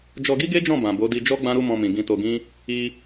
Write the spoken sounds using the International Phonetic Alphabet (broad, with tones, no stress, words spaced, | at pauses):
d͡ʒɔ˧ɡi˦ɡe˦d͡ʒɔ̃˦˨ bã˨bo˨˦ di˧d͡ʒɔ˦ ɡ͡bã˦ɾu˦mɔ̃˧mĩ˨ ɡĩ˧to˧ ɡĩ˦ | i˧